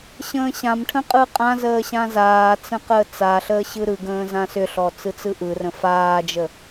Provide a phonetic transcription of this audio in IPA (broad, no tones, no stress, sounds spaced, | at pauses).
ɕ ə̃ː ɕ ã m ʈʰ ə̃ qʼ ɯ qʼ ã z əː ɕ ã z aː t͡s ə̃ q əː t͡s a ɬ əː ɕ ɯ ɾ ɯ ɡ ə̃ː z ã s ʏ ɬ ɔ t͡s ɯ t͡s ɯ ʔ ɯ r ə̃ f aː d͡ʒ ə